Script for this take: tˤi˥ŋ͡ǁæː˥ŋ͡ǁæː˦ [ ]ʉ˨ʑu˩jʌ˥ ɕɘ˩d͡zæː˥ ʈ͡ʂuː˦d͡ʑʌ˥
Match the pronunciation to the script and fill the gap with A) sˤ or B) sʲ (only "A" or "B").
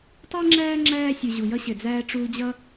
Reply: B